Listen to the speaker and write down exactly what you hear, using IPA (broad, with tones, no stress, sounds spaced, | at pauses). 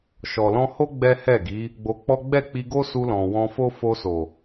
ʃ ɔ˨ l ɔ̃˧ h o˦ ɡ͡b ɛ˦ h ɛ˦˨ ɡ i˨˦ | ɡ͡b o˧ k͡p ɔ˦ ɡ͡b ɛ˦˨ k͡p i˧ ɡ o˦ s u˧ l ɔ̃˨ w ɔ̃˧ f o˦ f o˧ s o˨